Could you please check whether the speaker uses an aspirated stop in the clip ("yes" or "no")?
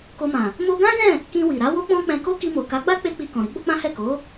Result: no